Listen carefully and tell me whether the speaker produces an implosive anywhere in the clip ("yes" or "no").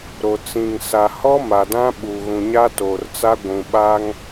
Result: yes